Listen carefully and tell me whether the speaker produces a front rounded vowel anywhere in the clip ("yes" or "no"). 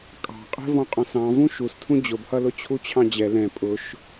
no